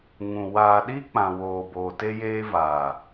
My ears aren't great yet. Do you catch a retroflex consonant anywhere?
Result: no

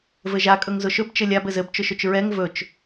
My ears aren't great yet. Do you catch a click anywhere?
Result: no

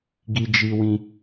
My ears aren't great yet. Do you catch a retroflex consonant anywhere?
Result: no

